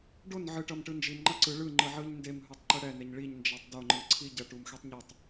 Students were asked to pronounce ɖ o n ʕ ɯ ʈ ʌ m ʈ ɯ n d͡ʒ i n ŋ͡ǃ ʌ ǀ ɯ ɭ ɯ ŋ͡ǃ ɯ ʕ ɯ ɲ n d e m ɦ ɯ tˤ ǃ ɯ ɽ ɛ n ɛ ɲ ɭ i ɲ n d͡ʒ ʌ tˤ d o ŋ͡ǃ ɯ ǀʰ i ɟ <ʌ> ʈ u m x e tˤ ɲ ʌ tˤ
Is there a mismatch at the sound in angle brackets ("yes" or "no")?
no